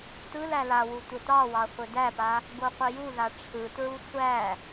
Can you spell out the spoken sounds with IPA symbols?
t ɯ l æ l a w u tʷ ɘ t ɑ w ɑ χʷ ɘ d æ p a | ɡ o qʷ ə j u ð a ʈ͡ʂʰ ɯ t ɹ u sʷ æ

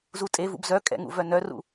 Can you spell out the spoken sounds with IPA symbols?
z u tʼ e v ṵ b z œ kʼ ɛ̰ ŋ ṵ v œ n œ r ṵ

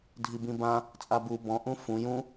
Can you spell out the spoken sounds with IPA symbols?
dʱ i b ĩ b ã | t͡sʼ a b u b ɔ̃ ʔ ũ f ũ j ũ

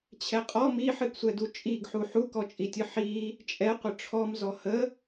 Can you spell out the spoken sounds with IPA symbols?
t͡ɕʰ ɛ qʼ ɔ m i ħ ɨ ɡ sʷ ɛ d u t͡ʃʼ i ɡ ħ u ħ u k ɔ t͡ʃʼ i tʲ ɨ ħ i | t͡ʃʼ ɛ qʷ ə ʈ͡ʂʰ ɔ m z ɔ h ə

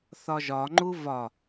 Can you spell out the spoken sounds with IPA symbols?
θ ɒ ʒ ɒ ŋ͡ǃ u v ɒ

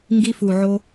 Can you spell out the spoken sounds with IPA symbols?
ŋ ɡ i˧ f u˨ ʕ o˧

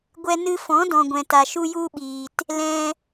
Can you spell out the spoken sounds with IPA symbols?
ɡʷ ɛ˧ n ɨ˧ f ɔ̃˨˦ d ɔ̃˨ ɡʷ ɛ̃˨ t a˨ ʃ u˦ j u˦ ɓ iː˨ t | l ɛ̃˧

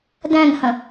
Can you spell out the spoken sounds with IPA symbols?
d æ̃ ŋ h ɐ̃

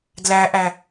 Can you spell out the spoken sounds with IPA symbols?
d l æ ʔ æ

